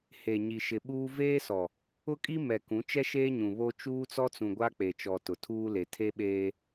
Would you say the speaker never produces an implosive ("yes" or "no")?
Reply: no